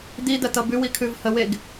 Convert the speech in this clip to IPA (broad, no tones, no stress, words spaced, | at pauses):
d̪id̪ɐt̪ʌ bʉwikʰʉv həweɡ